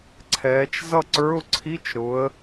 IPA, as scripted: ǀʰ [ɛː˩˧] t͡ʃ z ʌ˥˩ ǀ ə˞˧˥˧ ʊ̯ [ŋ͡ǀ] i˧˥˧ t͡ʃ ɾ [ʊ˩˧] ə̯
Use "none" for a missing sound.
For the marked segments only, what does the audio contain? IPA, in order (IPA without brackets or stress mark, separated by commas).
ɛː˩˧, ǀʰ, ʊ˩˧